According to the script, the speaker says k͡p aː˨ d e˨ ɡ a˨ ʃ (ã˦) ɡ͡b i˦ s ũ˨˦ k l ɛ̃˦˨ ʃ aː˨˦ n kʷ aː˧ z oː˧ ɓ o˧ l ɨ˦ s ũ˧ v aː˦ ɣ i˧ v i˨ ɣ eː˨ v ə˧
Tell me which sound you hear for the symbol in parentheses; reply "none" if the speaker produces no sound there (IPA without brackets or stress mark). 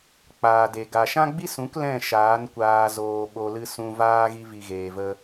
ã˦